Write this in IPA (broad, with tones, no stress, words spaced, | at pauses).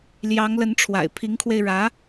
ljɑ˧˥ŋlə˧˥nʈ͡ʂʰwa̰˨˩ɪ̯ pʰi˧˥ŋkʰwe˧ɪ̯ɻä˧˥